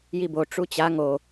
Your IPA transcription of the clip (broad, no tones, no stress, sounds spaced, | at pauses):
j i b o ʈ͡ʂ u t͡ɕ a ŋ o